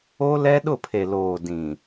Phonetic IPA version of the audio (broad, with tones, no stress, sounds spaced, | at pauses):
o˦ l ɛ˦ ɗ ʊ˦˨ pʰ e˨ l oː˨ d ĩ˨